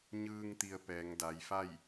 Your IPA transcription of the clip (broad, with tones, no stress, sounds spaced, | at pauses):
ɲ ɯː˧ ŋ t̪ i˧ ə̯ p ɛː˩˧ ŋ d a˩˧ j f a˥˨ j